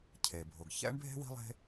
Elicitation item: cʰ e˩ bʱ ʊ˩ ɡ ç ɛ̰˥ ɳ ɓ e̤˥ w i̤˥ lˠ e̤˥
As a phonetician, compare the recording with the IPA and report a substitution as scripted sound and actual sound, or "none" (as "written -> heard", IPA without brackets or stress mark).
ɓ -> bʱ